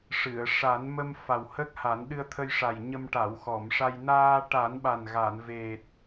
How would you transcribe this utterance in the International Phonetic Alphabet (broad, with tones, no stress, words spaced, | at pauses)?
ʂɨ˨˩˨ə̯ ʂa˨˩˦n mə˧m fa˨˩whə˦˥k̚ ha˨˩˦nɗɨ˧ə̯t̪ʰə˧jʂa˨˩j ɲə˧mʈa˨˩˨wxɔ˨˩˨mʂa˧j naː˧ʈa˨˩˦nɓa˨˩n ɣa˨˩˨nve˨˩t̚